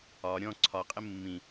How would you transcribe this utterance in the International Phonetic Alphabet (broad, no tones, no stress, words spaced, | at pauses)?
ɒ ɾʲɔ̃ ǀʰɒqʼɪ mːĩ